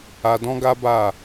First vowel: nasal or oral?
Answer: oral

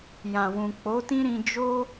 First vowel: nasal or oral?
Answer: nasal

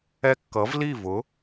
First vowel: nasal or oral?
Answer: oral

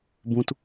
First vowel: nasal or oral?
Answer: nasal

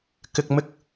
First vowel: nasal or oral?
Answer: oral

